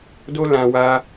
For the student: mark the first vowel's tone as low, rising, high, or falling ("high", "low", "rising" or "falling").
high